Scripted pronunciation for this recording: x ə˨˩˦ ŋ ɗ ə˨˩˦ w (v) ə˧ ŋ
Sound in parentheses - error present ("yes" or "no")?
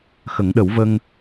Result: no